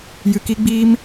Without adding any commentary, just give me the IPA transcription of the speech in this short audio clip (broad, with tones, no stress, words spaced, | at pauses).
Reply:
jɨ˧ki˦ɡ͡biː˦m